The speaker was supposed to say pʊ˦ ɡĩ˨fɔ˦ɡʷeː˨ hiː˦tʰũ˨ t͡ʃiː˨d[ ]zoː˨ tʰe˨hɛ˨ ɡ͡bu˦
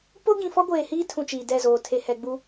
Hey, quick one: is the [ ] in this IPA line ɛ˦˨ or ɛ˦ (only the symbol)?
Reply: ɛ˦˨